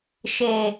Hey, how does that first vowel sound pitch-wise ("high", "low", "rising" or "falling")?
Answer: low